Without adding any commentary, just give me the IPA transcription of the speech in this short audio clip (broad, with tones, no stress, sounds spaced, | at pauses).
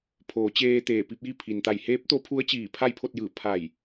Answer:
pʰ oː˩˧ t͡ɕ eː˧ t̪ eː˧˩ p i˧ p̚ j i˥˨ pʰ i˩ n t̪ a˧˩ j h eː˧˥ p̚ t̪ o˧˥ pʰ u˧˥ ə̯ t͡ɕ iː˧˩ pʰ a˥˨ j pʰ o˥˨ t̚ j ɯː˧˩ pʰ a˧˩ j